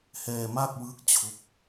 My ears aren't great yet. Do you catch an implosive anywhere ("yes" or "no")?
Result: no